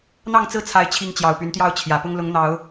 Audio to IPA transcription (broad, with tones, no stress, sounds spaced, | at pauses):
n̪ ɑ˥˨ ŋ t͡s ɹ̩˥˨ t͡sʰ a˨˦ ɪ̯ t͡ɕʰ i˨˦ ŋ t͡ɕ j ɑ˨˩ ʊ̯ p y˨˦ n t̪ j ɑ˥˨ ʊ̯ t͡ɕʰ j ä˨˩ p ʊ˦ ŋ l ʊ˨˦ ŋ n̪ ɑ˨˦ ʊ̯